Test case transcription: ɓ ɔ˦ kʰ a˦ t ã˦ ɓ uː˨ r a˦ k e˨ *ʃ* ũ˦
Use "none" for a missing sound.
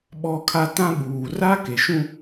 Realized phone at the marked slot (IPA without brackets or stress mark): ʃ